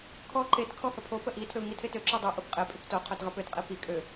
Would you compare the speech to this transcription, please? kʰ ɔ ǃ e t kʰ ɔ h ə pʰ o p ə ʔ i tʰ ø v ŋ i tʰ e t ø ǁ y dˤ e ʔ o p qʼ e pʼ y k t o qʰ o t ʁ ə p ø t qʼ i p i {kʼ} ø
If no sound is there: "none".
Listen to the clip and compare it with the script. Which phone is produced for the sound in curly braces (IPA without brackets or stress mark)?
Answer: kʼ